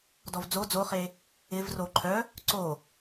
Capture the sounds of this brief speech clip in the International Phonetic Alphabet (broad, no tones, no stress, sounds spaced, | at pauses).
d ɔ v d͡z o d͡z o χ e | ɪ v r o ǃʰ œ | ǀ o